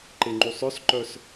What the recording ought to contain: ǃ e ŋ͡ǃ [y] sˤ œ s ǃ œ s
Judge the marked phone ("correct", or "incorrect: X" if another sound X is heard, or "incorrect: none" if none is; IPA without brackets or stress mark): incorrect: u